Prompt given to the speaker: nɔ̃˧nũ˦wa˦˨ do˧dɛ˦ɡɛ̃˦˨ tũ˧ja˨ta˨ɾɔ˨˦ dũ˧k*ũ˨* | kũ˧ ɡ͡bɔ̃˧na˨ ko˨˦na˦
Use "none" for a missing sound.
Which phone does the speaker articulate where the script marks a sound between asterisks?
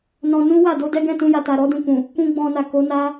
ũ˨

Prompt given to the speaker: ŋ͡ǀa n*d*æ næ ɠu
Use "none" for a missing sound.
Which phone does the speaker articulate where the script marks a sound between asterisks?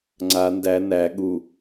d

